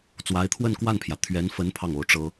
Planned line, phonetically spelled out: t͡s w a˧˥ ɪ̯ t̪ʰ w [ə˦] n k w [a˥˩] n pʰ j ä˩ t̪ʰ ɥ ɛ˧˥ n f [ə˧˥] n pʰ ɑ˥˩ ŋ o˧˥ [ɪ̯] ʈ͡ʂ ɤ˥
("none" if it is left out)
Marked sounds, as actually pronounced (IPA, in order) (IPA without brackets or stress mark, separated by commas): ə˥˧, a˥˩, ə˧˥, ʊ̯